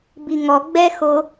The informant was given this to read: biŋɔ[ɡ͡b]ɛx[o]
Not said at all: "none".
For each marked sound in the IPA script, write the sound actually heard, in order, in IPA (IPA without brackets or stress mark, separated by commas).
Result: ɡ͡b, o